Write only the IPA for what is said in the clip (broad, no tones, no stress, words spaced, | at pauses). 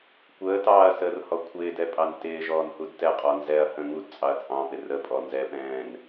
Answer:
kʷəːtɑːɐ̯ səːrhɔkʷʰɪːdɛ pʼɑntɪːʒɔːn hudtɛqʼɔ nzɛɐ̯hə̃ ŋudt͡sʼɑɐ̯ t͡sʼɑ̃pɪ rəpʼɔ nzɛpɛ̃ːn